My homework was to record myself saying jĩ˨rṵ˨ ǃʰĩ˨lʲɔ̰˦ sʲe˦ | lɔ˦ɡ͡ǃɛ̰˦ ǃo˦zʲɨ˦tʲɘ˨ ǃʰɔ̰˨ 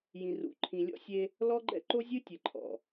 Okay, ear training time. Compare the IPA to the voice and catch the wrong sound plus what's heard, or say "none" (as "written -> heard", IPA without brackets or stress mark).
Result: none